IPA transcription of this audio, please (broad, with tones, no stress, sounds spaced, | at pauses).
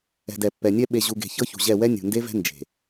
ɛ̤˨ d ɛ˨ pː ɛ˨ nʲ ɛ˦ ɓ e˨ ʑ u˨ ɡ e̤˨ ç ɤ˦ ç ṳ˨ ʑ ɛ˦˨ w ɛ˦ nʲ ṳ˨ n d e˦ v ɛ̤˦ n d͡ʒ e̤˨